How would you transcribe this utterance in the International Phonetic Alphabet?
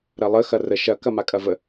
ɾ ɐ lˠ ə x ɐ r ə ʃ ɐ k ɐ m a kʼ ɐ v ə

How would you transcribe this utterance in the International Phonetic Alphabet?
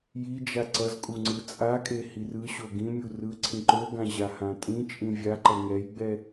j i d͡ʒ a ǀ ʌ z kʼ u ŋ͡ǀ ɯ t͡sʼ a kʼ e h i r ɯ ɕ o ɡ ĩ mʲ u r ɯ ǀʰ ĩ ǃ o ɡ ã ʑ a h ã tʼ ĩ t͡ʃʼ ĩ vʲ a ǃ ʌ ŋ ɛ j ɡ͡b ɛ

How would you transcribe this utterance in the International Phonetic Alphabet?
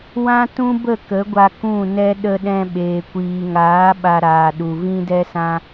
w ã˦ t ũ˦ b ə˦˨ k ə˨˦ ɡʷ a˧ k ũ˦˨ n ɛ˦ ɗ ə˧ ɗ ɛ̃˧ ɓ eː˨ kʷ iː˨ ŋ aː˨˦ ɓ a˦ ɾ aː˧ ɗ u˧ v ĩ˦ d ɛ˦ s ã˦

